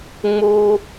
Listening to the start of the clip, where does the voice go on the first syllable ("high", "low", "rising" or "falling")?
high